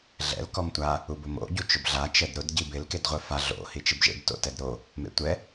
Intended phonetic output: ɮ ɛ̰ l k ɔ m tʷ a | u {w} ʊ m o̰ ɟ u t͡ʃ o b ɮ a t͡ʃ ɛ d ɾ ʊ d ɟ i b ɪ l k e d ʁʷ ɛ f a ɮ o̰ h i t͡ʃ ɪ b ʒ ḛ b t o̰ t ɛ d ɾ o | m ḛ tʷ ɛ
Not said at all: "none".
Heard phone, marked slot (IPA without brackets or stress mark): b